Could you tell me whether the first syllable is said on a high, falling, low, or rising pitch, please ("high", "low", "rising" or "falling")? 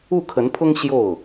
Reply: falling